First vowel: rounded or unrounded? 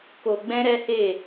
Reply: rounded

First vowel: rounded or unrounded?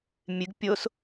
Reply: unrounded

